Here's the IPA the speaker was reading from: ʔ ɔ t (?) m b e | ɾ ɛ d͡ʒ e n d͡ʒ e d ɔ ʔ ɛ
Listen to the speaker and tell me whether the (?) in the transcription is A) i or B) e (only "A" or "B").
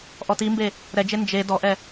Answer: A